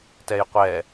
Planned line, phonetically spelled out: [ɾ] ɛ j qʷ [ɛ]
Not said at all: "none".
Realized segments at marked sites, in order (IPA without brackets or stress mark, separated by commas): t, ɛ